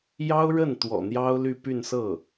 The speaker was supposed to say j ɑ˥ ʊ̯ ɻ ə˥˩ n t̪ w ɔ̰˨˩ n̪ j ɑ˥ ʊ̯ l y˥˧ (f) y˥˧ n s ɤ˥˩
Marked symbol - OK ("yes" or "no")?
no